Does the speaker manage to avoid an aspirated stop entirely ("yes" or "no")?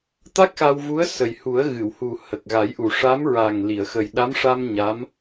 yes